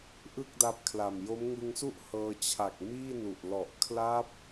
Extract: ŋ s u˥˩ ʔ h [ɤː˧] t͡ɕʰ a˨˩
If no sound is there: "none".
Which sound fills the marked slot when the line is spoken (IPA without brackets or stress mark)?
ɤː˧